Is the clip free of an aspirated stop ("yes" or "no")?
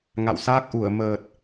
yes